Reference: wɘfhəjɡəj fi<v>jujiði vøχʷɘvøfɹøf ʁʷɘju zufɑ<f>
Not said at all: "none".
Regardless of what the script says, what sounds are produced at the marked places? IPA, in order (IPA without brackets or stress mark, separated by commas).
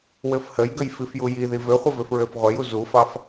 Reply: f, f